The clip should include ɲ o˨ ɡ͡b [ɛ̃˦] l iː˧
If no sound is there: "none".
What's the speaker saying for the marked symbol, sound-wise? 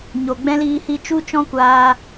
ɛ̃˦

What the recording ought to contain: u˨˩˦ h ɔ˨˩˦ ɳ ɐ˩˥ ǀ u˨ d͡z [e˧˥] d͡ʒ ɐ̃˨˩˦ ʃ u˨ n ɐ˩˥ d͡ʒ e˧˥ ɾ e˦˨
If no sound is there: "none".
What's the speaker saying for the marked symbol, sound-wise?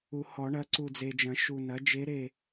e˨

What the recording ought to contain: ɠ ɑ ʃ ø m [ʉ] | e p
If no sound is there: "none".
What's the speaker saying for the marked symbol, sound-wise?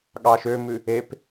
ʉ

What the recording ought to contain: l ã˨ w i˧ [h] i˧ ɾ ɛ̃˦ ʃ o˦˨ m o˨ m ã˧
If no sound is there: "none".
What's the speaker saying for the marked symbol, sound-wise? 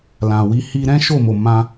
h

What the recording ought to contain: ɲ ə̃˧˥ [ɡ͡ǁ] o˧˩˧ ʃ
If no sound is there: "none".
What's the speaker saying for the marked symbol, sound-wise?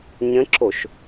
ǁ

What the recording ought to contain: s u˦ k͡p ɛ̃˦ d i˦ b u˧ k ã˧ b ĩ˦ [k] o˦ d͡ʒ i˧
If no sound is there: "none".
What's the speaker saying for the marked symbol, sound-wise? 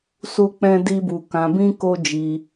k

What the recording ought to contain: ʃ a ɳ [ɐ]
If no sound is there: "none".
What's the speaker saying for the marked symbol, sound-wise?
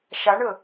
ə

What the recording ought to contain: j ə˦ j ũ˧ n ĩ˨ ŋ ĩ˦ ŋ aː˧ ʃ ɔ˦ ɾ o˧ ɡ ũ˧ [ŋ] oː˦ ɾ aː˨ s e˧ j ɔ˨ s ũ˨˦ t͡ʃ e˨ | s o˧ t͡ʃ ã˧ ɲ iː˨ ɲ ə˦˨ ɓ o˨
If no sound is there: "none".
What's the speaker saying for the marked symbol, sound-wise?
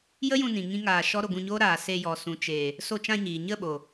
ɲ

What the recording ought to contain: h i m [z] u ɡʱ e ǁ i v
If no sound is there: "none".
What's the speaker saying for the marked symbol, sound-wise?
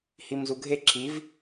z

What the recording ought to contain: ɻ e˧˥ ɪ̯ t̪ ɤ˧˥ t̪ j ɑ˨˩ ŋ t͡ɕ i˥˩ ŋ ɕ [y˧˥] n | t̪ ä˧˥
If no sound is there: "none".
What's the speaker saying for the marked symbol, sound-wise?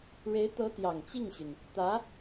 y˩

